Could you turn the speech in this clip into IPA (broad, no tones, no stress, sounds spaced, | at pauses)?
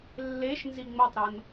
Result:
lː e ʃ n z i ŋ͡m o tˤ ɾ ɤ n